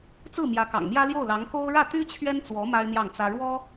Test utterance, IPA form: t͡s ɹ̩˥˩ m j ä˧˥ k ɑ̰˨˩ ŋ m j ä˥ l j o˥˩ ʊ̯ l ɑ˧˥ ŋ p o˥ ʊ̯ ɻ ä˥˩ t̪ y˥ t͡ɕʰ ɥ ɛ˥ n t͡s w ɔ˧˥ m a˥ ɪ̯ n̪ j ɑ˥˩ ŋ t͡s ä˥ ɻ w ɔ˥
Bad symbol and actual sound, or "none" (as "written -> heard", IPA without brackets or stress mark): p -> k